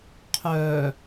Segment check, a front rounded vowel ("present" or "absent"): present